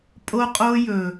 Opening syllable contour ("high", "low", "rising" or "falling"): high